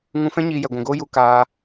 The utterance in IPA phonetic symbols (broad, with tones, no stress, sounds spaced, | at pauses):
ŋ ũ˧ f ɛ̃˦ ɲ iː˧ j ɛ˨ ɡʷ ũ˨ ɡ oː˦ j u˧ k aː˧